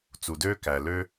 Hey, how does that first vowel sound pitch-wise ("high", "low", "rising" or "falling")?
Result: low